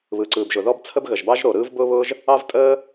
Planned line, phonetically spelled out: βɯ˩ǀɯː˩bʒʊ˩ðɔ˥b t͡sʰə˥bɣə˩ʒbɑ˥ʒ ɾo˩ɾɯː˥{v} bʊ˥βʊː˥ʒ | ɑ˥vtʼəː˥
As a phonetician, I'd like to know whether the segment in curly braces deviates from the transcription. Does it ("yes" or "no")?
no